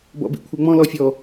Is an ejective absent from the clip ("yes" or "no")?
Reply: yes